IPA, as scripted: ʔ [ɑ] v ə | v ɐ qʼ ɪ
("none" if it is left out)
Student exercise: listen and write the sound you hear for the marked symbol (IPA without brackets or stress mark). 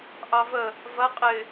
ɑ